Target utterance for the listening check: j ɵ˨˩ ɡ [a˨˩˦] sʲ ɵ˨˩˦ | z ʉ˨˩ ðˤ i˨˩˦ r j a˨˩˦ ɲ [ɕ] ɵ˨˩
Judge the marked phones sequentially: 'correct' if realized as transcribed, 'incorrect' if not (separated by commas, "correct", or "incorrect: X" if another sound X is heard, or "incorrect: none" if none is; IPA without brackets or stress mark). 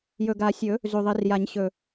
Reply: correct, correct